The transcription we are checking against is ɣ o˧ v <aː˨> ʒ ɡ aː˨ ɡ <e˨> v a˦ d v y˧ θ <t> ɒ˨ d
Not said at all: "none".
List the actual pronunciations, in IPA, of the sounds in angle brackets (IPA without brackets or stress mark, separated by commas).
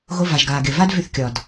a˨, e˨, kʲ